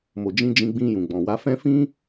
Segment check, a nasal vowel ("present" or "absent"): present